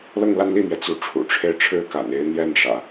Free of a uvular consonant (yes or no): yes